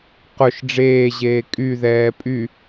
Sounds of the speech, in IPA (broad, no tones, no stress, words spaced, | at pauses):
qʊʃ ɖ͡ʐeːʑeː kʼyðɛː pʼy